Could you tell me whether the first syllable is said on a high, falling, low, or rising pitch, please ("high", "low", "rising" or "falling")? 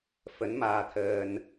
rising